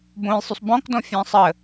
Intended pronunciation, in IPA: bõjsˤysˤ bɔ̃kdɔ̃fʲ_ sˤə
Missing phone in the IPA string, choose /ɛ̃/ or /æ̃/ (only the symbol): æ̃